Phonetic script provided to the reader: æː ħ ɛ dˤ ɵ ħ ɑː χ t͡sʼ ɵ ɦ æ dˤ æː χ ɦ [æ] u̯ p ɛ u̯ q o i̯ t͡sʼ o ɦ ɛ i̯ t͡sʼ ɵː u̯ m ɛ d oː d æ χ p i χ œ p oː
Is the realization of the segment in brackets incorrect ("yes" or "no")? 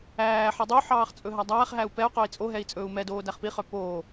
no